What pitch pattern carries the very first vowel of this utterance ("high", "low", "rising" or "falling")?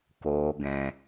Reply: low